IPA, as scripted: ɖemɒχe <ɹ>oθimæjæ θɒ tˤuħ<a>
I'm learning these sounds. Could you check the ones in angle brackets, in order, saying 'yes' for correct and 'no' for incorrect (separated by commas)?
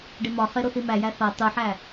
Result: no, no